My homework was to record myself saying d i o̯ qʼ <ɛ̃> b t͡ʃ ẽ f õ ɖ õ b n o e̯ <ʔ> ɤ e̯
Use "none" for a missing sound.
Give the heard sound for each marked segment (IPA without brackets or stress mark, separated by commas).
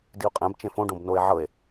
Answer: ɛ̃, ʕ